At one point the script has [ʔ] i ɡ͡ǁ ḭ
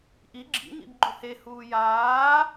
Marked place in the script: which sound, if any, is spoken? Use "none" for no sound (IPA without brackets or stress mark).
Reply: ʔ